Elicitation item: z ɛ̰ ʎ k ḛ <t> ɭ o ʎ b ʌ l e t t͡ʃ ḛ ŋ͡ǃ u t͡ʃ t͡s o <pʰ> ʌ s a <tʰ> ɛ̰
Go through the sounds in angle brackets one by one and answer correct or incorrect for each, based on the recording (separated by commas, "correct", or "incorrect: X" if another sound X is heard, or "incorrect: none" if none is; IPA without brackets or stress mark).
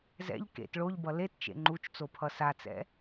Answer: correct, correct, incorrect: t͡s